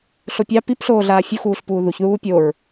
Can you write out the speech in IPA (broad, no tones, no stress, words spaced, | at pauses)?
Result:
ɬopʲɑ pipɬoːɮaː fʲuxuːɬpuː ðuçðuː pʲoɹ